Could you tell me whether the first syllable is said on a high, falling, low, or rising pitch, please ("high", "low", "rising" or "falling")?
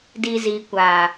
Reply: low